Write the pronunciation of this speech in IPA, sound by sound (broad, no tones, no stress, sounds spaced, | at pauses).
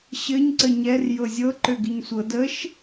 ɕ ɘ ɲ ǀ ə ɲ ɛ r j ɤ zʲ ɤ ǃ ø ɡ i ɲ sʷ ɤ d ə ʃ